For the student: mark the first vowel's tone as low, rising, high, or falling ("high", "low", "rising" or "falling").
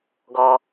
low